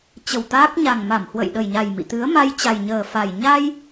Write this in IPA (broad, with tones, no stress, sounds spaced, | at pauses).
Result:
t͡ɕ ə˨˩ w t̪ aː˦˥ k̚ ɲ a˨˩ ŋ m a˧˩ m h w ə̰˧˨ j ɗ ə˨˩ j ɲ a˨˩ j m ḭ˧˨ t̪ ɨ˨˦ ə̯ m a˧ j t͡ɕ a˨˩ j ɲ əː˨˩ f a˨˩ j ɲ a˧ j